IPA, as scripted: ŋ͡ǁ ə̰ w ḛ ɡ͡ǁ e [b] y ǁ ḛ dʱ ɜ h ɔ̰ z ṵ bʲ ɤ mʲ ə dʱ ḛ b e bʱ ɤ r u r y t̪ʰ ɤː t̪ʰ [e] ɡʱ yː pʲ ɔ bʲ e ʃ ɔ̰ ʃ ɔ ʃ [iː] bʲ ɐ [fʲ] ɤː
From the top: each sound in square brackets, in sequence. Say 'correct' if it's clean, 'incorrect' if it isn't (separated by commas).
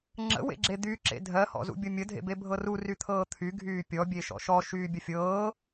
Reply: incorrect, incorrect, incorrect, correct